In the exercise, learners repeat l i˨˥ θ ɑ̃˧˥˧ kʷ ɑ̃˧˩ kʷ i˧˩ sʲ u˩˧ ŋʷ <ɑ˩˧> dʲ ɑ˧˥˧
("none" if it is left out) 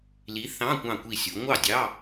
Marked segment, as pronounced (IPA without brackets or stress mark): ɑ˥˩